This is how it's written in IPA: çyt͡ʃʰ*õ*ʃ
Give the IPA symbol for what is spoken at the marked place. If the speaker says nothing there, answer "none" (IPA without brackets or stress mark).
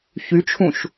ũ